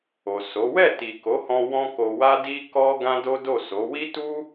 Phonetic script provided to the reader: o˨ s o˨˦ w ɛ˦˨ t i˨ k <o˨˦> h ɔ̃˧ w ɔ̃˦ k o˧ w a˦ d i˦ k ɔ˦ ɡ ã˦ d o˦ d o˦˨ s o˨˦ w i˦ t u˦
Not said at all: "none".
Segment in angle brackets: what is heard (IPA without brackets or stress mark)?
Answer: o˨˦